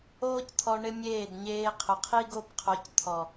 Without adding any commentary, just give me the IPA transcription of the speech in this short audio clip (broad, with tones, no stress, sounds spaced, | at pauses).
oː˦ c t̪ʰ ɔ˧ ɳ ɪ˦ mʲ eː˦˨ d ɲ eː˧ qʰ ʊ˨ qʰ i˦ ɡ o˦ b qʰ o˧ c t̪ʰ ɔ˨